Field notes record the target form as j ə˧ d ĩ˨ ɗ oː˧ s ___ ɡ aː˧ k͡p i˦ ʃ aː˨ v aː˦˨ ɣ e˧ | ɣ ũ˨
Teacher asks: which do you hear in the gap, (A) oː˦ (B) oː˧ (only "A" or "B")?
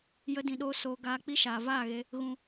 B